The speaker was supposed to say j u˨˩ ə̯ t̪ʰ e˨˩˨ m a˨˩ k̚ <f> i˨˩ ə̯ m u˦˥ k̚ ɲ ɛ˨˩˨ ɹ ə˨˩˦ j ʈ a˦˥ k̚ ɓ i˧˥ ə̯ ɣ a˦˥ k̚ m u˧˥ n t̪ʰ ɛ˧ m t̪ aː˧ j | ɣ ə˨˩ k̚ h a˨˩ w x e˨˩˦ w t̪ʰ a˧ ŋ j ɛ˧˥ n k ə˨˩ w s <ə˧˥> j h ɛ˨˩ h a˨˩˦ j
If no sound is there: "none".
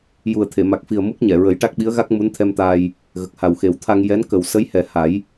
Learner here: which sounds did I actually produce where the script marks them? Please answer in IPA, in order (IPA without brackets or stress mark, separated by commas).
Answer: f, ə˧˥